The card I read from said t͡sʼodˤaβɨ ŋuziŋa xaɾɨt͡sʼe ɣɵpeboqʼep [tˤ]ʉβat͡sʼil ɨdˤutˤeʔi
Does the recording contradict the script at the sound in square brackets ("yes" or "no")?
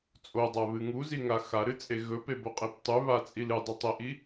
no